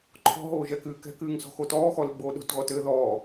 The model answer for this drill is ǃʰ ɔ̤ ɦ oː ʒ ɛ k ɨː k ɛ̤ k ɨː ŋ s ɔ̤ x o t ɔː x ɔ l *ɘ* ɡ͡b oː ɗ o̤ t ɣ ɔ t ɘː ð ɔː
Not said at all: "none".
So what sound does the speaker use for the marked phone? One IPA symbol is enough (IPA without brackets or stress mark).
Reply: ɘ